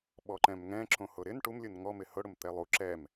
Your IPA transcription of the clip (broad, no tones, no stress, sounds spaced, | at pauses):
ɓ ɔ ǃ ɛ̃ m ŋ ɛ̃ ǁ õ h ʊ ɾ ɪ n ʈ u m lʲ u n ŋ ɔ m ɪ h ʊ ɽ ʊ m t̪ ɛ lˠ u ǁ ɛ m